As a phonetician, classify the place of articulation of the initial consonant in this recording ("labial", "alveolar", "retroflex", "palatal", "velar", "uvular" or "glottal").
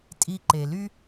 alveolar